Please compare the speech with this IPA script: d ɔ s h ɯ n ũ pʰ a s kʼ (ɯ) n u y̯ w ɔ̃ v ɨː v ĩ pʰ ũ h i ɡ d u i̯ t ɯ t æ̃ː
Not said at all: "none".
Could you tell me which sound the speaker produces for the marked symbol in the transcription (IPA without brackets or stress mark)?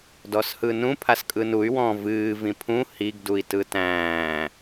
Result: ɯ